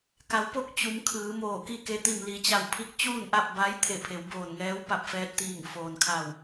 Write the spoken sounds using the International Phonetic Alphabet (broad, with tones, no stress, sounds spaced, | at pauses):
k a˩˧ w p o˥˨ k̚ t͡ɕ u˩˧ m kʰ ɯː˩˧ m oː˧˩ k i˥˨ k e˧ t̪ i˧˩ m l i˩˧ t͡ɕ a˧˩ w pʰ i˧˥ k̚ t͡ɕ uː˥˨ n ʔ a˥˨ p̚ b a˧˥ j t̪ʰ e˧˩ pʰ e˩˧ w b oː˧˩ n ŋ ɛː˧˥ w p a˧ p̚ f ɛː˧ t̚ t̪ iː˧˩ ŋ f oː˩ n kʰ a˧˩ w